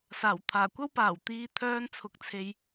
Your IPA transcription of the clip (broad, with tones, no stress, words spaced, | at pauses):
saː˨˩wt̪ʰaː˨˩kʷɐ˥wpaː˨˩w t̪iː˧ t̪ʰœː˧nt͡sʰʊ˨k̚t͡sʰe˨j